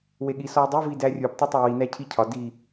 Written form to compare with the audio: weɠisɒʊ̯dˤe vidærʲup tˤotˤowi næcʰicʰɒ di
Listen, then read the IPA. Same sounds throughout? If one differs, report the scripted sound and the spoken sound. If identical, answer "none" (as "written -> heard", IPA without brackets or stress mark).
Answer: none